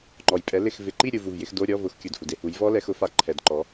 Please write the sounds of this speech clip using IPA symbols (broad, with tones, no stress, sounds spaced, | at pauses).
ŋ͡ǃ ɔ˨ j pʼ ɛ˨˥ l ɪ˦˨ x v ɪ˨ ǃ i˦˨ ɾʲ u˨ v u˨ v j ɪ˨˥ x d o˧˥˧ ɾʲ ɔ˧˥˧ v ʊ˨˥ x kʲ u˨ d h u˨ d e˧˥˧ h u˨˥ j v ɔ˦˥ l ɛ˨˩˦ x ʊ˨˥ f a˨˩˦ ǃʰ ɛ˨˩˦ d ǃ ɔ˨˥